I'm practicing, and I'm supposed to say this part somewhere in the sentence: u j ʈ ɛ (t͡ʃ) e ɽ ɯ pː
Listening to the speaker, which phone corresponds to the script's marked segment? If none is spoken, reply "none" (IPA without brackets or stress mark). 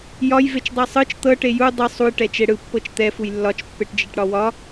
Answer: t͡ʃ